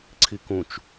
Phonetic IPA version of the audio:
ǀʰ i k ũ t͡ʃ

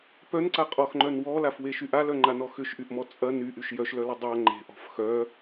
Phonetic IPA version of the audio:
p œ n ǀ a qʼ ɔ x ŋ͡ǃ œ n w ɔ l a f w e ʃ y ʔ a l œ ŋ͡ǃ a n ɔ x ʏ ʃ ʔ y ʔ m ɔ t͡sʼ ɐ n y ʔ y ʃ j œ ʃ l œ l ɐ dˤ a ŋ͡ǃ e̤ ʔ ɔ̤ f x œ

